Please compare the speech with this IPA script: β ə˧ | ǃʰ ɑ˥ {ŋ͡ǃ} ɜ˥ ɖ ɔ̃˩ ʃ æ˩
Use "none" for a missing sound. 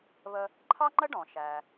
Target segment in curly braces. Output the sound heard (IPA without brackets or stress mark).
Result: ŋ͡ǃ